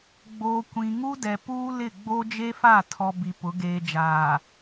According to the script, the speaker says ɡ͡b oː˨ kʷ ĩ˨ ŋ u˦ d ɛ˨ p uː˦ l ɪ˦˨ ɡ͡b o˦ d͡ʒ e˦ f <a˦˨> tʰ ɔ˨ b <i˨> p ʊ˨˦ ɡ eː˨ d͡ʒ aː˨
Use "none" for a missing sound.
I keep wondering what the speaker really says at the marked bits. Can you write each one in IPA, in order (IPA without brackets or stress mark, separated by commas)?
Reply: a˦˨, i˨